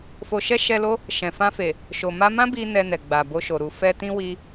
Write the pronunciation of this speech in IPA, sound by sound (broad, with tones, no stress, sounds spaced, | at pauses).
f o˨ ʃ ɛ˧ ʃ ɛ˧ l o˦ | ʃ ɛ̃˨ f ã˧ f e˨ | ʃ o˨ m a˧ m ã˦ b i˦ n ɛ˧ n ɛ˨ ɡ͡b a˨ b o˧ ʃ o˨ ɾ u˨ f ɛ˧ t ĩ˦ w i˧